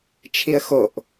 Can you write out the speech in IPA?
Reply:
t͡ʃʰiə̯xoʔ

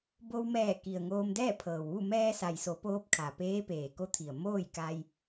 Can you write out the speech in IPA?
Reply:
bo˧wmɛː˧˩ ki˩ə̯ ŋoː˧mdɛː˥˨pʰɤː˩wʋu˥˨ mɛː˧sa˩jso˩˧ poː˧˥p̚kʰa˩peː˧˥ peː˩ko˧˥t̪ʰi˩ə̯ moː˥˨j ka˧j

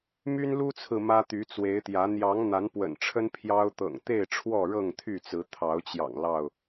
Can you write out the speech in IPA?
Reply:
my˦nlu˦t͡sʰɹ̩˨ mä˦t̪y˨˦t͡swe˨˦ɪ̯t̪jä˨˦ n̪jɑ˨˦ŋ n̪a˨˦npwə̰˨˩nʈ͡ʂʰə˦n pʰjɑ˦ʊ̯ t̪ɤ̰˨˩ŋt̪e˥˨ɪ̯ ʈ͡ʂʰwɔ˥˨ɻɤ˥˨ŋt̪ʰy˥˨t͡sɹ̩˨˦ t̪ʰɑ˨˦ʊ̯t͡ɕjɑ̰˨˩ŋ lɑ˥˨ʊ̯

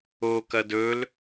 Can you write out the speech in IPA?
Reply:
okɐd ɵl

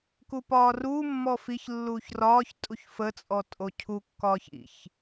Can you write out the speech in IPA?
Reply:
kupɒːruː mːɔfiç lːuːçrɒːç tʼuçfə t͡sʼɔtʼocʰu kːɒːçḭç

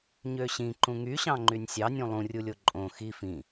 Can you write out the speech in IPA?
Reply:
ɲøɕĩ ǃũŋyɕɑ̃ŋ͡ǃynʲ sʲɑnʲũ lˠũrʲulʲo ǃʼõ xi fĩ

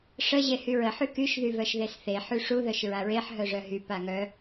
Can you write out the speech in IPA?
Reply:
ʂə ʑehyɹə ħykyʃ ðyvœʃðesθe ħyʂu ðœʃɹaɹeħ ɦœʐœɦy paŋœ

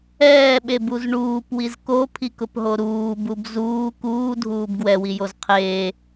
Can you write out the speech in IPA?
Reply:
ɛːɓebuz ɳuːpwiz kopʰikʊpɦo ɾuːbub zuː kuːdʱuːb ɡwɛwijoz qʰeː

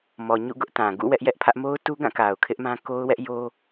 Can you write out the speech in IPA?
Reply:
mɔ˨ɲṵ˦˨ ɡʊ˦ʔtã˨ ɡṵ˦˨ wɛ˦ʔjɛ˦ʔpʰä˦ʔ mo˦ʊ̯tu˦ɡã˦˨ ka˨ʊ̯kʰɪ˦ʔmã˦ ko˦ʊ̯wɛ˦ʔjo˦

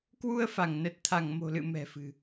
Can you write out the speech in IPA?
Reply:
kwu˧ə̯fa˧˩ŋnə˨˩t̚t̪ʰa˧˩ŋ mo̤˨˩lɨ̰˧˨ mɛ̤˨˩fɨ̤˨˩

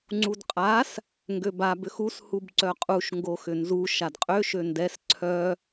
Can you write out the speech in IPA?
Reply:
ŋ͡ǀudqʼas | ŋɡøba bʏxus hubǀœqʼuʃ ŋɡoxʏnzu ʃadqʼø ʃøndɛs ǀʰœ

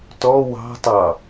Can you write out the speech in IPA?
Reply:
tɔ wɑ̤tˤɑ

